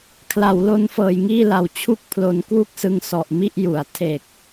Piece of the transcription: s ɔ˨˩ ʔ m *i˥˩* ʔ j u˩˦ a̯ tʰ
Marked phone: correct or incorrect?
correct